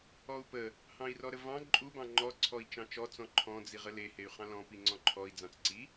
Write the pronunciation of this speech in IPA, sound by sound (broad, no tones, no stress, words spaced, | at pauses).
ɔu̯pə | hɑ̃i̯rɔɾəvɑ̃ ǃʼu bɑ̃ŋ͡ǃɔ ǀʰɔi̯t͡ʃɑ̃t͡ʃɔ t͡sɔ̃ǃʰɔ̃ d͡ziʁəle hey̯χɑ̃lɔ̃ piŋ͡ǀɔ̃ǃʰɔi̯ d͡zɑ̃t͡sǀi